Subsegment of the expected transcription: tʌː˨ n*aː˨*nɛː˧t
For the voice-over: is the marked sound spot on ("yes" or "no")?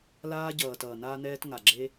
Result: no